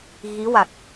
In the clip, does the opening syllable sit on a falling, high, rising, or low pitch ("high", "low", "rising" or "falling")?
rising